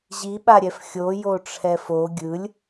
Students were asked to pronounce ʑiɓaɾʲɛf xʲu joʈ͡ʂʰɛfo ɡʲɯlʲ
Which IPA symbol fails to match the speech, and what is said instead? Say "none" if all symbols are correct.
u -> o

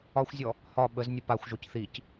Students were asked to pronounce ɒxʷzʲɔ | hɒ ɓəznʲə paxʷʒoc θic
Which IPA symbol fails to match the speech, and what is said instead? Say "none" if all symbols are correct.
none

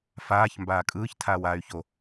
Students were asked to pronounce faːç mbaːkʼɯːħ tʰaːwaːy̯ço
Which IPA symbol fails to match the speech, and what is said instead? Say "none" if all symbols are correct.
ħ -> ç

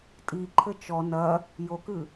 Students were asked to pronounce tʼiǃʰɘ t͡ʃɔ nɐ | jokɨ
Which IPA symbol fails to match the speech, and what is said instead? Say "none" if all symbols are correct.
none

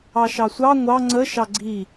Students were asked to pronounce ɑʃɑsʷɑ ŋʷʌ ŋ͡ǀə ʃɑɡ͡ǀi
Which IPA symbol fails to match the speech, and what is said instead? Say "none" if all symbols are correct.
ʌ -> ɑ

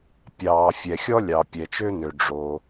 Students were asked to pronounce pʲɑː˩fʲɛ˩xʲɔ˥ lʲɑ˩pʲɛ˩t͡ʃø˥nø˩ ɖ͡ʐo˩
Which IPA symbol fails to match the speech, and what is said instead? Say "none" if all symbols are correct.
none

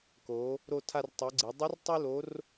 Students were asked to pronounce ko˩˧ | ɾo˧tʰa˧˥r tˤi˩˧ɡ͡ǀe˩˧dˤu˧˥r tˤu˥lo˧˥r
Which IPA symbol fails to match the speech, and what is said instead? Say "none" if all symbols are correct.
a˧˥ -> a˧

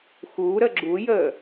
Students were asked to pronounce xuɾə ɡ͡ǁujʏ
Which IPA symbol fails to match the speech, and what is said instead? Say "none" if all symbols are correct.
ʏ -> ə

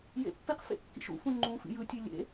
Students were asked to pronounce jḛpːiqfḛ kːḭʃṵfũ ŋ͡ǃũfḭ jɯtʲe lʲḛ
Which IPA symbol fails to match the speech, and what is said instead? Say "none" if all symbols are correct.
none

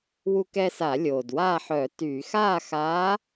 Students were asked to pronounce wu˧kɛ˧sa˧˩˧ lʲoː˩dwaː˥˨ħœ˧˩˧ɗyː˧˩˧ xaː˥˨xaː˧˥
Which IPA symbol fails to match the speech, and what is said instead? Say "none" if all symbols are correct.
ɗ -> t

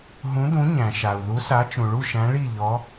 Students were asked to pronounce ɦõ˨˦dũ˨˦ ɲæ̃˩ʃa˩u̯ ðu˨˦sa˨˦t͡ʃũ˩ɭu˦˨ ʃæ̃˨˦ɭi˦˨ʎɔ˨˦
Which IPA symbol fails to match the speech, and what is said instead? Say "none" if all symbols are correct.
õ˨˦ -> ũ˨˦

